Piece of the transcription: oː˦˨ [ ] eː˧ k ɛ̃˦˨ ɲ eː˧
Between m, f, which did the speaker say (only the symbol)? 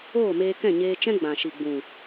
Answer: m